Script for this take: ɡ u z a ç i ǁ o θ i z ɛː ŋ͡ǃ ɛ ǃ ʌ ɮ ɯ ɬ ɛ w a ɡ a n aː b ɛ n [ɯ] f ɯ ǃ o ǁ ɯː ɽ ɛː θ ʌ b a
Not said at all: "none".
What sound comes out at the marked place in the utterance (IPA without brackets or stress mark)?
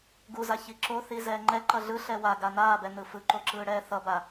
ɯ